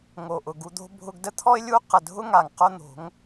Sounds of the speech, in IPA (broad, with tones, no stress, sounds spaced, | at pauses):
ŋ o˨ ʔ ʊ˨ ɡ u˧ d̪ o̤˦ bʱ ʊ˧ ɡ d ə˦ t̪ʰ ɔ˦ ɪ̯ lʲ u˦ q ə˨ dʱ ʊ˦ ŋ a˨ ŋ q o˦ n̪ o̤˨˦ ŋ